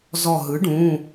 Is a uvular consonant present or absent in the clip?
absent